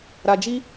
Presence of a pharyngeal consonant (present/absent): absent